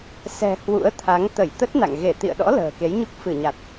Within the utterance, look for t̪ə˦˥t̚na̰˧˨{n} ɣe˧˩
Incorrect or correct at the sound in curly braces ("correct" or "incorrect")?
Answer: incorrect